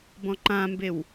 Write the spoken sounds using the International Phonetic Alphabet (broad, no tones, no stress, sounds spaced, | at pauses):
b ɔ̃ ǃ ã m b e w